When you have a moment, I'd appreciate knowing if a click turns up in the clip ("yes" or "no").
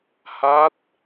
no